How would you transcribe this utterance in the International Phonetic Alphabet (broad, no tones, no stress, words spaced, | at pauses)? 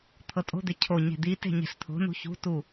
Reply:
t̪ʰɤtʼo̤d̪e cʰo ɲe̤d̪ite̤ ɲe̤ɬt̪ʰo̤nṳ çṳtu